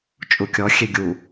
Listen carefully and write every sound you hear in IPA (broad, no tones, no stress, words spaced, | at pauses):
t͡ʃʼukʲɔ xʲeɡʲu